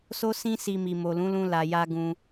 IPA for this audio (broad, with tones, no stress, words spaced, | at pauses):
so˦sĩ˦ si˧mi˨ mo˨lũ˨˦lũ˧ la˨ja˧ ɡũ˧